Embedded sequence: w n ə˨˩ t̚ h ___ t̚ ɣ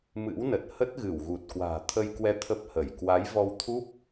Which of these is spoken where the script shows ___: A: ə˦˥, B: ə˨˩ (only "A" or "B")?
A